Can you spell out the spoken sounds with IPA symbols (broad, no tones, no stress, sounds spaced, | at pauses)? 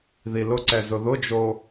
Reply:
ð i l ʊ ǀ ɛ z ʊ ð ʊ d͡ʒ o